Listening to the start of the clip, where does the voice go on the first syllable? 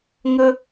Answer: high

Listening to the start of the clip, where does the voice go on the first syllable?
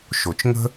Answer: low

